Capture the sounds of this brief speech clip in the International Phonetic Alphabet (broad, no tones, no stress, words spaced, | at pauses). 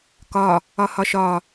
kɒ | ɒhɒʃɒ